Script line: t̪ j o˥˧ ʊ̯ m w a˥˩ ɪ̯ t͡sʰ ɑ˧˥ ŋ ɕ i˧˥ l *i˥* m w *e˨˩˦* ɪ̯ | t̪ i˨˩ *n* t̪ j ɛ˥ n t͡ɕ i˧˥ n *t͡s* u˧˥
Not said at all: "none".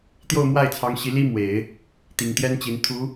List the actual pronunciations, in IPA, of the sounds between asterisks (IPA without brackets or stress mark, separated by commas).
i˥, e˨˩˦, ŋ, t̪ʰ